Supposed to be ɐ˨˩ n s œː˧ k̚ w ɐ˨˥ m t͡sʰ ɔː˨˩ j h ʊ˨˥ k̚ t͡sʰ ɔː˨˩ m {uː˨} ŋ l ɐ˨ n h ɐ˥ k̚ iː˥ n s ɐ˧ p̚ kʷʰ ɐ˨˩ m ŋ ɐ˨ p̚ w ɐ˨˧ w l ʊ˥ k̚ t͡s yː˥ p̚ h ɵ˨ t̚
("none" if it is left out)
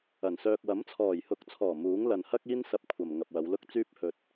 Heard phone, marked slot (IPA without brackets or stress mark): uː˨˥